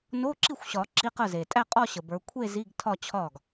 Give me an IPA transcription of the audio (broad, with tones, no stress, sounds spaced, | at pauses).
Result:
n o˧˥˧ ǁ i˥˩ xʷ ɕ ɒ˨˩˦ ǁ i˧˥˧ q ə˥˩ z e˨ tʼ æ˥˧ qʼ ɒ˥˧ ɕ ə˨ b ə˞˨˦ kʷʰ e˥˧ z i˧˥˧ ɡ tʰ ɒ˥˧ t͡ɕʰ ɒ˥˩ ɡ